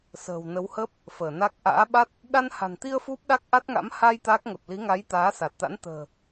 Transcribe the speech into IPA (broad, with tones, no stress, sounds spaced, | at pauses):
s ə̤ː˨˩ w n ə˨˦ w h əː˦˥ p̚ | f əː˧˩ n a˦˥ k̚ ʔ a̰ː˧˥ ɓ a˦˥ t̚ | ɗ a˧ n h a̤˨˩ n t̪ i˧ ə̯ f u˦˥ p̚ ɗ a˦˥ k̚ ʔ a˦˥ t̚ ŋ a̰˧˥ m h a˧ j t̪ a˦˥ k̚ ŋ ə˨˩ p̚ l i˨˦ ŋ a˨˦ j t̪ aː˨˦ s a˨˩ t̚ t̪ a̰˧˥ n t̪ ə̤ː˨˩